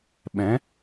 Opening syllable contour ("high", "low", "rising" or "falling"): rising